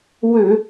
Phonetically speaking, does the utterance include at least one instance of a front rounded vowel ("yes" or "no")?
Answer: yes